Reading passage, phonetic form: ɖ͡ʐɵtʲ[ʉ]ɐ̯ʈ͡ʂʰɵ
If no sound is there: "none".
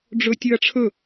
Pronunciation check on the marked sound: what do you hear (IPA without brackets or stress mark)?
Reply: ʉ